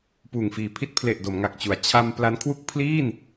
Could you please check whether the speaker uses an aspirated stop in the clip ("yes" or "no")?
yes